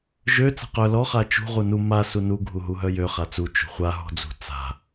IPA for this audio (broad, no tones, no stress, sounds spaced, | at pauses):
ʒ ø t͡s a̤ q œ l ɔ χ a t͡ʃ ṳ ʁ u n u m a s u n u ɡʱ u ɦ u ɦ œ j ø χ a t͡s u t͡ʃ ṳ χʷ a ɦ ɔ̤ d͡z ṳ t͡s a̤